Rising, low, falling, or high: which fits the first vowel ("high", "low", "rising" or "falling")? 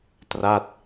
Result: falling